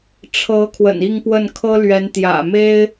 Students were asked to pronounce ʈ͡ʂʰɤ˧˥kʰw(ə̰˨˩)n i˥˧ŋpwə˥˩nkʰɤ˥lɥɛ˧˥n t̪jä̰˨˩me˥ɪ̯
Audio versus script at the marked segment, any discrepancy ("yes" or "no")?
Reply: no